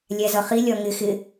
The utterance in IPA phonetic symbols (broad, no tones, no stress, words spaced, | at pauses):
lʲæzʌχi lʲɒŋɪ xɪ